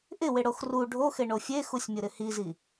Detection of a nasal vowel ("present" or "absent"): absent